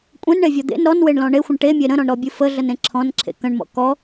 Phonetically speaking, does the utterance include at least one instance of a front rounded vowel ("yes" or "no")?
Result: no